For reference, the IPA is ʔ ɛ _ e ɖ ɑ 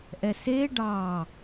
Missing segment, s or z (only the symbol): s